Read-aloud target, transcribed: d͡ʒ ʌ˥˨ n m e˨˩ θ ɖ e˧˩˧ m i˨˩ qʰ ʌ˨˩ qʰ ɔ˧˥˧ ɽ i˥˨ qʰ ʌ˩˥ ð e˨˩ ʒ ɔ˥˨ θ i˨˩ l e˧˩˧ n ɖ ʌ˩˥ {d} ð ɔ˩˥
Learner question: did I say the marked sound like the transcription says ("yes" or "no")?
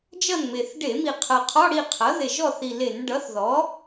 no